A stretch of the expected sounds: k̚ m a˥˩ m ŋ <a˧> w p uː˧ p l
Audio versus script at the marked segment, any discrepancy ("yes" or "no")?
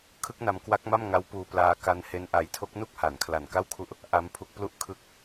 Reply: yes